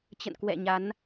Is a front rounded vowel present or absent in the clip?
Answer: absent